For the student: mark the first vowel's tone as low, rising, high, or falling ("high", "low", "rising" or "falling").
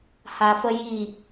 low